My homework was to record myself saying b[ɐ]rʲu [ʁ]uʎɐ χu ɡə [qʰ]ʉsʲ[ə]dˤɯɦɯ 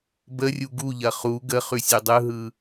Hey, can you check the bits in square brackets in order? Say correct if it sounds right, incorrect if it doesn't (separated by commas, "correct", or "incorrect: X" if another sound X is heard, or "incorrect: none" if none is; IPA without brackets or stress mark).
incorrect: ə, incorrect: ɡ, incorrect: χ, incorrect: ʉ